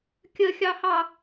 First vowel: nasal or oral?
oral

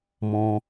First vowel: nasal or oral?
nasal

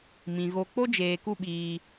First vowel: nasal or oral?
nasal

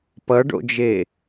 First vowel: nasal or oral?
oral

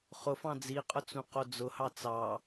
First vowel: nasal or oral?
oral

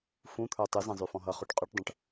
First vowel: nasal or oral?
nasal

